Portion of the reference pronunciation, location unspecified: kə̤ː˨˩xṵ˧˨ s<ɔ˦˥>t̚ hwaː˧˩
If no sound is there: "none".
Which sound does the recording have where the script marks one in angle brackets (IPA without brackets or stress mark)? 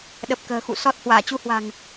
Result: ɔ˦˥